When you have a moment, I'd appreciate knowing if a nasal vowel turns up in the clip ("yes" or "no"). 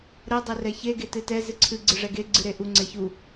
no